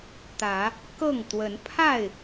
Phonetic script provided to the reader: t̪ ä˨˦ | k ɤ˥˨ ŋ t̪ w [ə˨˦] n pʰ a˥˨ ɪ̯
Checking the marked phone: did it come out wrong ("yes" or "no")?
no